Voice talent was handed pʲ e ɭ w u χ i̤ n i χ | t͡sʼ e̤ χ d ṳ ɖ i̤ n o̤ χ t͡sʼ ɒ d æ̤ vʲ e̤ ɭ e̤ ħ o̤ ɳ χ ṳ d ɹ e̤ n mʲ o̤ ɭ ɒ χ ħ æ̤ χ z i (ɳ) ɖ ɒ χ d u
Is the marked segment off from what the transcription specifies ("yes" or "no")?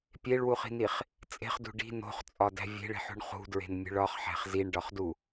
no